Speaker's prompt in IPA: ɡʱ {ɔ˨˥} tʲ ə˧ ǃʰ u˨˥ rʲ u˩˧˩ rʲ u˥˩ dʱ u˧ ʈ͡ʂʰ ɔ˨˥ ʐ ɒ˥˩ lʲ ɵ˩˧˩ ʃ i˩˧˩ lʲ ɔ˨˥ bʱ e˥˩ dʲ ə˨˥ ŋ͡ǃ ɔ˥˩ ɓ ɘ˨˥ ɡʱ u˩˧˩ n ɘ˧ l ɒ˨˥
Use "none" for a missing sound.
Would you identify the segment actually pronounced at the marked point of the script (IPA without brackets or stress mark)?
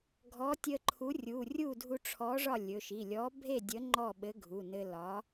ɔ˨˥